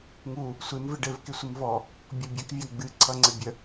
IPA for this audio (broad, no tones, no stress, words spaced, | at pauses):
ŋu | sʷɪm vɪɖɘvkɪ sʷɨmvɔ | bʲɔbʲɘkvʲa ɡ͡bɨǀʰʌŋ͡ǀɘ bʲə